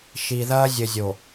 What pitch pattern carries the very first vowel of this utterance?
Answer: low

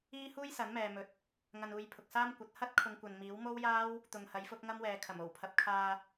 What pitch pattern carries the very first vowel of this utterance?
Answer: high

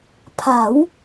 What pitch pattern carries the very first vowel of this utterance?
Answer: rising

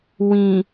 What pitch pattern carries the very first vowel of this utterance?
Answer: low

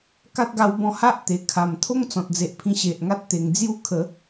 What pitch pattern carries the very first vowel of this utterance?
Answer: high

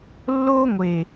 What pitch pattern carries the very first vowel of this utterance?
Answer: high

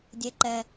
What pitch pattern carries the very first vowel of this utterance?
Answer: high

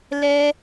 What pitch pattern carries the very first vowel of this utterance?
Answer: high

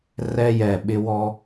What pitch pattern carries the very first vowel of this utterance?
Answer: high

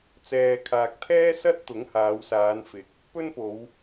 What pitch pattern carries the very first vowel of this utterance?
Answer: low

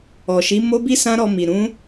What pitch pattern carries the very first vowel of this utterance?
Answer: low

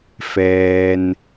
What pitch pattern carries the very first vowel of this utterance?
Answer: low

